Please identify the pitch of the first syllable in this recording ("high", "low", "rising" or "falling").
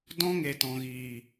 high